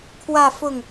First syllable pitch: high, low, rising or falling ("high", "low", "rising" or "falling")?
falling